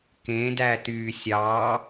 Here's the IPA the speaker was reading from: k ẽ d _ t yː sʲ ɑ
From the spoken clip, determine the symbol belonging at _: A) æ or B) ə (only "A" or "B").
A